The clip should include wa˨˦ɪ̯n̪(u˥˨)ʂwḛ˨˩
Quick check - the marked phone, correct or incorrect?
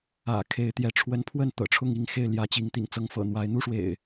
correct